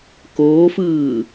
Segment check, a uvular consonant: absent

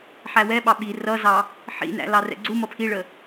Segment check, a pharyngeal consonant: present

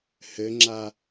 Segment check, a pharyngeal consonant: absent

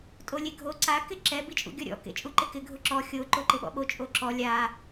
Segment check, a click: present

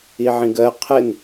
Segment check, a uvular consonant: present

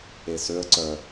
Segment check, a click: present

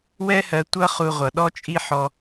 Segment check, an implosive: present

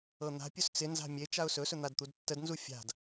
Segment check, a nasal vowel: absent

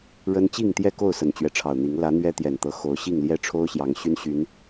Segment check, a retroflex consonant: present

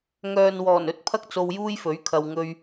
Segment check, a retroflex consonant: absent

